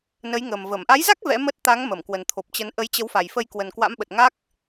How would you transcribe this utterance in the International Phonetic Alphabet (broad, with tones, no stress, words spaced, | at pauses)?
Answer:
nə˨˦jŋə˨˩m və˧˩m ʔa˨˦jza˦˥k̚ vɛ̰˧˥mə˦˥t̚ t̪a˨˦ŋ mə˧˩mkwə˨˩nt̪ʰo˨˩p̚t͡ɕə˨˦n ʔə˨˦jt͡ɕə˨˦wfa˨˩jfə˧j kwə˨˩nkwa̰˧˥mɓə˨˩t̚ ŋa˦˥k̚